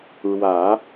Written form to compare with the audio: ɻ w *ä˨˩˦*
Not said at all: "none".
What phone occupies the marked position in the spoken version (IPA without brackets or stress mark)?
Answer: ä˨˩˦